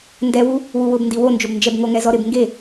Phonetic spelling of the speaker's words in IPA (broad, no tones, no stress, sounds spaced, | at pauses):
n d ɛ w u | w u w ʊ b n d i w o n d͡ʒ o b n d͡ʒ ɛ b ŋ o ŋ ɛ z ɔ ɾ ɪ b ŋ ɡ e